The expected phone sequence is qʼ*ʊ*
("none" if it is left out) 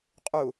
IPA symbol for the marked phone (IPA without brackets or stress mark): u